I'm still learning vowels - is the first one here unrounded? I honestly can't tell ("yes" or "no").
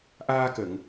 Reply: yes